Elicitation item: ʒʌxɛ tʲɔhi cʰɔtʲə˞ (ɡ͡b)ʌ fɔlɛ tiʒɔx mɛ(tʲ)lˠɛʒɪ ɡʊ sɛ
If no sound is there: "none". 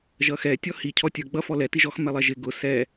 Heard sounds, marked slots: ɡ͡b, none

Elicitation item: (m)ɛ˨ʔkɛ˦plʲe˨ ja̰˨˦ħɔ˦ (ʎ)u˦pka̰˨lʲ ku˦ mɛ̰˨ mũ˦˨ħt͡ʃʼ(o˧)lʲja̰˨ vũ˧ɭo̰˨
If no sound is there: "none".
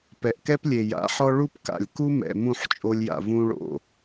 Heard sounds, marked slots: p, ɭ, o˧

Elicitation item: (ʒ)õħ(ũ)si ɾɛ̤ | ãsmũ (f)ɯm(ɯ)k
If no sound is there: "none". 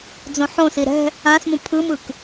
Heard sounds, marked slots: d͡z, õ, pʰ, ɯ

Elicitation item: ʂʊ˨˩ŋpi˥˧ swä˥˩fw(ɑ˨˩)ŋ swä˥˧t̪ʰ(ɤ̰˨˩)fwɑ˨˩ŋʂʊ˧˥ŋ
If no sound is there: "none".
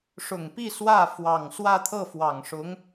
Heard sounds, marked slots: ɑ˨˩, ɤ˥˩

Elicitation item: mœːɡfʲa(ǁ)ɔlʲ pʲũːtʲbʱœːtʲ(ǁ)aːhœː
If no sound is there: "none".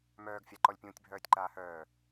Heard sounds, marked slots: ǃ, ǃ

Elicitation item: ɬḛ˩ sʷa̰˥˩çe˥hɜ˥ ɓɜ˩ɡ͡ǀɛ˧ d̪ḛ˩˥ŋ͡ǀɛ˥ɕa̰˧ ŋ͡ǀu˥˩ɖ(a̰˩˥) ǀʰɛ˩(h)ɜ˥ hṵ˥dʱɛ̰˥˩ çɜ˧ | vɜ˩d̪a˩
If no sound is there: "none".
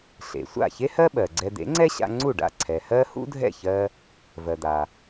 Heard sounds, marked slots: a̰˥˩, h

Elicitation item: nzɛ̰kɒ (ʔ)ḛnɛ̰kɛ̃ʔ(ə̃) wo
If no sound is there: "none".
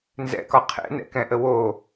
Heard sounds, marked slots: qʰ, ə

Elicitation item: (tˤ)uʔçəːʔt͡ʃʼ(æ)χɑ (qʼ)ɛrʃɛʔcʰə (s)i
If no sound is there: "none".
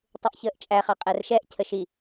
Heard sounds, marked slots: tˤ, æ, qʼ, ʃ

